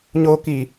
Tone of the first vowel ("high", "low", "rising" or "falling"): low